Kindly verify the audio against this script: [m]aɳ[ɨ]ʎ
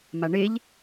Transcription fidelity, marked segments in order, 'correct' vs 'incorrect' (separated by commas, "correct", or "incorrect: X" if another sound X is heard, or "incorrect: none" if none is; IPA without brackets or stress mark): correct, incorrect: e